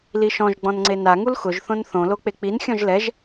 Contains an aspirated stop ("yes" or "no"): no